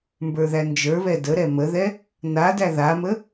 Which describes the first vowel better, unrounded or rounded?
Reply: unrounded